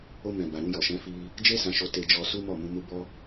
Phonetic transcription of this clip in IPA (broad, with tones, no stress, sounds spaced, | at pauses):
o˧ m ɛ̃˨ b a˨ ɾ ũ˧ j ɔ˨ ʃ ɛ̃˨˦ f i˧ | d͡ʒ e˦ s ã˧ ʃ o˧ t e˧ d͡ʒ ɔ˧ s u˦ m ɔ˦˨ m ũ˧ m u˧ b ɔ˧